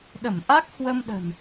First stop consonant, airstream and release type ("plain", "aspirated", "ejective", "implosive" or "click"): implosive